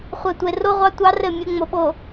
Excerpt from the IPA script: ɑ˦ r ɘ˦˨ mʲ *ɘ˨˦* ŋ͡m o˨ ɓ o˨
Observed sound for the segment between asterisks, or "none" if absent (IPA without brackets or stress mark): ɘ˨˦